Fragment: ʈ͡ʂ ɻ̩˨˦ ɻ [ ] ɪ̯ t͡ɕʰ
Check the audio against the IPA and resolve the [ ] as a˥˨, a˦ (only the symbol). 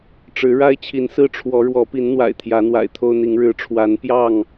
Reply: a˦